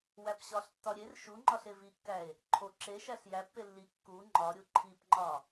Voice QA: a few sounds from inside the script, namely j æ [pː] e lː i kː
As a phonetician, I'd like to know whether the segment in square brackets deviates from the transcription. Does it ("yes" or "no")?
no